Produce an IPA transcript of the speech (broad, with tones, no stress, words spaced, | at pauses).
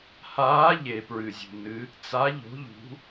haː˨˦ ʎe˩pɹɨ˩zʲṳ˩nɨ˨˦ | t͡sa˨˦ ʎo̤˨˦ʎṳ˨˦